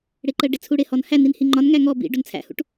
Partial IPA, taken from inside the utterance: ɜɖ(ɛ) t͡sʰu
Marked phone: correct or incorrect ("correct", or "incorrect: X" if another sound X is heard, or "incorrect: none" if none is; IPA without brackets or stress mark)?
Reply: incorrect: ɪ